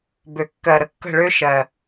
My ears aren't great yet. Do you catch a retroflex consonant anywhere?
yes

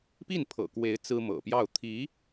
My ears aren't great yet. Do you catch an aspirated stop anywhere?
yes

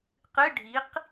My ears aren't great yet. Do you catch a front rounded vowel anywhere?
no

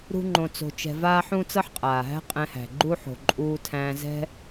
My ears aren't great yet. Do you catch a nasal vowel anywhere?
yes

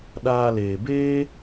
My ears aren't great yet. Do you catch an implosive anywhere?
yes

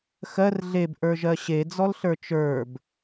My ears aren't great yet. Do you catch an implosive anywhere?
no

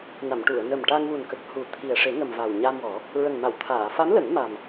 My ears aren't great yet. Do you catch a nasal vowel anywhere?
no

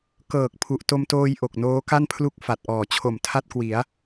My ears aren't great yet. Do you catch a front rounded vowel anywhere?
no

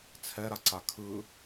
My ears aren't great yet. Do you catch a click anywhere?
yes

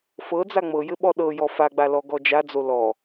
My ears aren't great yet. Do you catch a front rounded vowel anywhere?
no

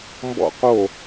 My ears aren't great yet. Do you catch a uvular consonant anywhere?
yes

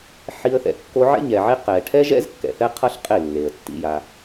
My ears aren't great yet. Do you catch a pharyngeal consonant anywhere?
yes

